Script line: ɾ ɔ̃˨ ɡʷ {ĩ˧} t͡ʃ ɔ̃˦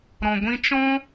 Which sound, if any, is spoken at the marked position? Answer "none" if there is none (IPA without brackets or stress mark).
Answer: ĩ˧